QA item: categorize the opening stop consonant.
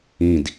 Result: plain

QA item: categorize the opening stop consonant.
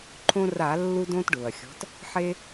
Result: click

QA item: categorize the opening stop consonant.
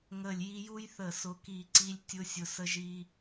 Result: plain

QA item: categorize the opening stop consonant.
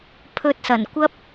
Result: aspirated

